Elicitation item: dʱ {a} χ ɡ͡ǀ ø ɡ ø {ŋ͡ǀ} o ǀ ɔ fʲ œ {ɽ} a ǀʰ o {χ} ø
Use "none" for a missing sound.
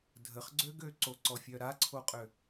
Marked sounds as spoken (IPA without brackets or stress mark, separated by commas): ə, ǀ, ɾ, qʼ